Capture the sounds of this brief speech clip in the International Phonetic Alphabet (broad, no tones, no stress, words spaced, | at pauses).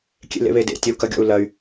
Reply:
kʲḛlḛβedḛ tʲɐu̯kɐɡʲɔ̰u̯ lɐy̯